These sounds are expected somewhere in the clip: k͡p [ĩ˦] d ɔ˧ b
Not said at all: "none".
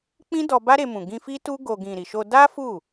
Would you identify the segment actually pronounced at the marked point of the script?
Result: ĩ˦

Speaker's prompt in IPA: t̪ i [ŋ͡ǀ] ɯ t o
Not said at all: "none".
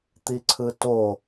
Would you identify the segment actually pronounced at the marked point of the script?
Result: ǀʰ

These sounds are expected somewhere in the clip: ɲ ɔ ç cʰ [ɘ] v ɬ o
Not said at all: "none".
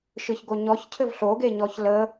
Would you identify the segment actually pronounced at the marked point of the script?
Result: ɘ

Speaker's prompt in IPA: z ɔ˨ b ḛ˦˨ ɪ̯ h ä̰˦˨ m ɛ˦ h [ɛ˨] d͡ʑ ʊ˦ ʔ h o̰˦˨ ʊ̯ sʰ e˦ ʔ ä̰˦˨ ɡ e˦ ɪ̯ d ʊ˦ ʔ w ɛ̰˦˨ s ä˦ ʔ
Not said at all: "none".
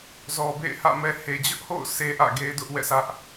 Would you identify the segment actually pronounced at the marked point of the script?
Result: e˨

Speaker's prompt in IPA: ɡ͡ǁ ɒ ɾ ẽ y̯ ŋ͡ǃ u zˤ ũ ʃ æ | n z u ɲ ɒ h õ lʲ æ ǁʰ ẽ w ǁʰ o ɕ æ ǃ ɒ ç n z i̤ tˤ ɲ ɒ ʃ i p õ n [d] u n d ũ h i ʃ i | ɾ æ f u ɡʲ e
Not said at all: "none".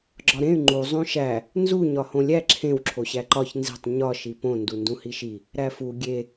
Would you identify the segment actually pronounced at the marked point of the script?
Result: d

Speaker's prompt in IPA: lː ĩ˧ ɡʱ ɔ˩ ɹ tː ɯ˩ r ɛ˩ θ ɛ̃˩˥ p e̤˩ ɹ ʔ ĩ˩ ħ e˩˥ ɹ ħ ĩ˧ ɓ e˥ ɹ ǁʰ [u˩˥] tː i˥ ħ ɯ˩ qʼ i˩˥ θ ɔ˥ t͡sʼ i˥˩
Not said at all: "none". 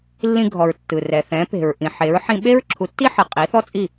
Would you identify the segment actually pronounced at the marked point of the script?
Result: u˩˥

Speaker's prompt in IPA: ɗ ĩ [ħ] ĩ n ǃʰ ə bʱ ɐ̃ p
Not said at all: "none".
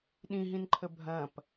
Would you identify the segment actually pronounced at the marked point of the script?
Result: ɦ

